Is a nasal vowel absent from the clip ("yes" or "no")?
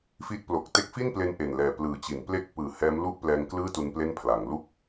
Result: yes